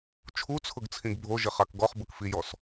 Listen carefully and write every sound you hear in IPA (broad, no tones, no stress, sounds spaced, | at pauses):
t͡ʃʰ u t͡sʰ ʊ ɡ t͡sʰ ĩ ɡ bʱ o ʒ ɪ χ a k ɡ ɔ χ b ʊ k f i j ɔ s